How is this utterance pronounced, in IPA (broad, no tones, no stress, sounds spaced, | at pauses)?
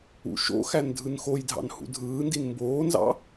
ṵ ʃ o̰ x æ n dʱ ɯ n x o j dʱ ɑ̰ n h ṵ dʱ ɯː n d i n m b oː n z ɑ̰